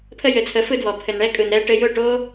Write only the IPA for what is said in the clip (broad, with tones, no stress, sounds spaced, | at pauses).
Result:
pʰ ə˧ j ɘ˨ t͡sʰ ə˨˦ f ɯ˧ d w ɔ˨ pʰ ɘ˨ n ɳ ɛ˧ kʼ ɯ˨ n ɾ ɛ˧ ʈ ɘ˧ j ʊ˦˨ ʈ o˦